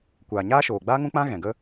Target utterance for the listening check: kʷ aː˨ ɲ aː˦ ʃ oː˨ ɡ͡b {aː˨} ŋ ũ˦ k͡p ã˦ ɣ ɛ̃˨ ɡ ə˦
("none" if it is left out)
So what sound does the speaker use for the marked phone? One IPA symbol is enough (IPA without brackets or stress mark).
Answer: aː˦